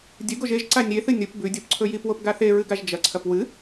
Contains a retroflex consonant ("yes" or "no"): no